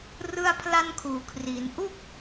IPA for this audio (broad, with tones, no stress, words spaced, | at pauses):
rɯ˥˩a̯pʰla˥˩nkʰuː˩˦kʰri˩˦n ʔu˥˩k̚